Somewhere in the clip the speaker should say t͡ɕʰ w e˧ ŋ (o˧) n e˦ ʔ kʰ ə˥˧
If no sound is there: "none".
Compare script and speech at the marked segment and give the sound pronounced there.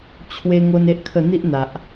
o˧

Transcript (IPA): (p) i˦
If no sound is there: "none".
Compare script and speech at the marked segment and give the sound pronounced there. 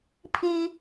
pʰ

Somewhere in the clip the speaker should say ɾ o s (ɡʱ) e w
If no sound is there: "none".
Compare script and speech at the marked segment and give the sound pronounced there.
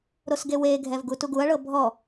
ɡ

